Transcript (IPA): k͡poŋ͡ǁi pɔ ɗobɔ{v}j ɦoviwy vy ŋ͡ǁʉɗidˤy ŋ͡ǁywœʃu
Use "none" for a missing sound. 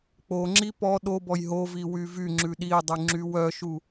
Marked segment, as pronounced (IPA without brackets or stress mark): none